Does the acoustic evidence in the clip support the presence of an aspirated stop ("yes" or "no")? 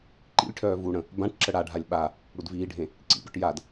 yes